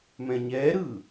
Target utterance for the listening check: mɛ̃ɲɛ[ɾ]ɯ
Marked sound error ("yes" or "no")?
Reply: no